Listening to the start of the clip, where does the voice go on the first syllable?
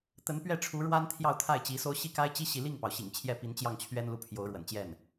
rising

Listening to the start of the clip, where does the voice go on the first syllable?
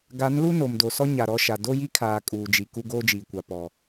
rising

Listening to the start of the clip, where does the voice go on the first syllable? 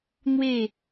falling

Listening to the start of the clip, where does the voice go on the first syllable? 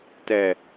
low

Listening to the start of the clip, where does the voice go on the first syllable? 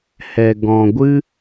low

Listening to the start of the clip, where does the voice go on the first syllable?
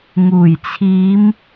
low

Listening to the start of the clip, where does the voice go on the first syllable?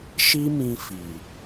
high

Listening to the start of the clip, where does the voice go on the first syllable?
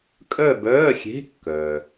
falling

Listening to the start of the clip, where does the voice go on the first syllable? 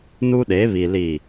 high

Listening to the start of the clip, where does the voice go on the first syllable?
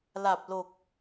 low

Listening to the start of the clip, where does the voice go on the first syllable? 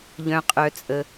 high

